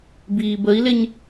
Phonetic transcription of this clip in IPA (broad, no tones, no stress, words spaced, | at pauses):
biːbəi̯lɪɲ